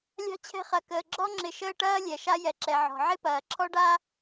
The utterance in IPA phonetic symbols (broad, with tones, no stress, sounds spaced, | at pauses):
lʲ a̤˦ t͡ɕʰ ɛ̤˦ χ ɐ˩ k əː˩ ɡ͡ǁ ɔ˥ ŋ͡ǁ ɪ˨ ʃ əː˦ ʈ ɐː˥ lʲ ɛ˩ ʃ a˦ j ɛ˩ ǁ ɛ˩ ʕ ɔ̤˩ ʕ ɪ˥ p ɐː˩ ǁʰ ɔ˥ ɖ a˥